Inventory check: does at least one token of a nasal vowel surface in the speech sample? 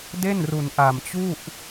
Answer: no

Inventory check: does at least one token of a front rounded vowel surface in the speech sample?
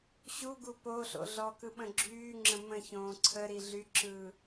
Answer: yes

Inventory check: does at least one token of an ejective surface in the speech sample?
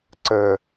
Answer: no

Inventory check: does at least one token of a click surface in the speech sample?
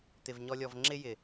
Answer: yes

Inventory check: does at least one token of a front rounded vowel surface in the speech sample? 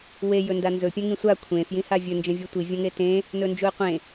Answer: no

